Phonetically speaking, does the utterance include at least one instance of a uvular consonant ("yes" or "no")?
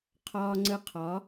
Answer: yes